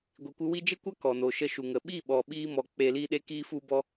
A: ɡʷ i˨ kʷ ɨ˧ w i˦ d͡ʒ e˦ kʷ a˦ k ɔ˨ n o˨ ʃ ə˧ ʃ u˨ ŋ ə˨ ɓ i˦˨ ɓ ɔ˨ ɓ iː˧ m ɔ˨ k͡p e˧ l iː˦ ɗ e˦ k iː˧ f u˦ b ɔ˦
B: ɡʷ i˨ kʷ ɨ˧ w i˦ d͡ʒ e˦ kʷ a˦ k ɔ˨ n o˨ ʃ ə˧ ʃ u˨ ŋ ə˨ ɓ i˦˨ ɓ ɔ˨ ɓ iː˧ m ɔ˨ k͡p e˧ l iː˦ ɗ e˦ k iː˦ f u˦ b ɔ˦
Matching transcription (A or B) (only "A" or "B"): B